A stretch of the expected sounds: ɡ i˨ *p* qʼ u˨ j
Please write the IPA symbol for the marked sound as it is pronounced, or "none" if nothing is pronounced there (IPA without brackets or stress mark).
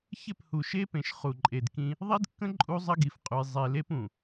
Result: f